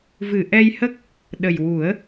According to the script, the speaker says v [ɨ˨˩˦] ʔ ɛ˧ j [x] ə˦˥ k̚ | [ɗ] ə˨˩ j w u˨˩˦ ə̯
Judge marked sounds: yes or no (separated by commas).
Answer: no, no, yes